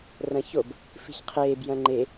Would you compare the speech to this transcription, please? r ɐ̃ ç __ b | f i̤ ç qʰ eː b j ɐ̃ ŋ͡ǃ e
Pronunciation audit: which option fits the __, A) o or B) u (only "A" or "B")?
A